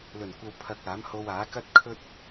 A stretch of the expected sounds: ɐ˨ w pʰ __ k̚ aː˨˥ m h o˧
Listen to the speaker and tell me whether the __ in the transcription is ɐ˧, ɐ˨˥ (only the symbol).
ɐ˧